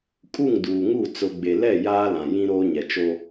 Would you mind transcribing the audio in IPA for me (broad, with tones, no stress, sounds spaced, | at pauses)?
kʼ u˦˨ ŋ d uː˨ ŋ u˦˨ t͡s ʊ˨ ɡ͡b e˨ l ɛ˦˨ j aː˦ l ã˨ j ĩ˦ ɾ oː˦ ɲ ɛ˨ t͡ʃ o˦